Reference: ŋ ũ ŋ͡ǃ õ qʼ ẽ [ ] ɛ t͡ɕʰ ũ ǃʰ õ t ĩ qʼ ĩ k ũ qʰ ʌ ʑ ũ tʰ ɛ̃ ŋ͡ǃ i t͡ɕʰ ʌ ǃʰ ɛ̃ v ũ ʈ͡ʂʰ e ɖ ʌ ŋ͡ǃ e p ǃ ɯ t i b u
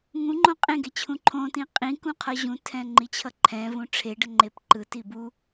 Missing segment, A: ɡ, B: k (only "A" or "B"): A